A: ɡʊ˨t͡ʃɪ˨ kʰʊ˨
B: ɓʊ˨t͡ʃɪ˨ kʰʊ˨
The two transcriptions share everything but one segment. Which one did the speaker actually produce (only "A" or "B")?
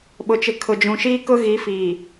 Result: B